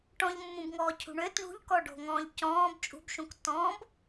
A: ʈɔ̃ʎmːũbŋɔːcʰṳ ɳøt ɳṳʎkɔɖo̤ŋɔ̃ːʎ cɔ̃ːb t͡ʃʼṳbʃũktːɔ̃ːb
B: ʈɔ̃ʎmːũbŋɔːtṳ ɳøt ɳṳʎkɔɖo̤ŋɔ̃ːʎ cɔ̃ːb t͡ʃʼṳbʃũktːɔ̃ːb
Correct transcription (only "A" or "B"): A